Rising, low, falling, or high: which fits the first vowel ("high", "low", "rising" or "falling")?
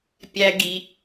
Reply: high